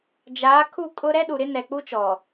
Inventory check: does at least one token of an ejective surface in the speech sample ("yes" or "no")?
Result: yes